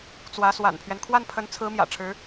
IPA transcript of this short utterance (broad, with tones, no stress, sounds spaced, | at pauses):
t͡s w ä˧˥ s w a̰˨˩ n pʰ ɥ ɛ˦ n kʰ w a˥˩ n pʰ ə˧˥ n t͡sʰ ɹ̩˧˥ m j ä̰˨˩ ʈ͡ʂʰ ɻ̩˧˥